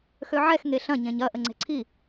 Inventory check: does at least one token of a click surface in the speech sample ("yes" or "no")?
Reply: yes